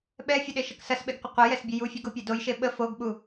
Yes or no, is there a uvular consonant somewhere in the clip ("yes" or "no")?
yes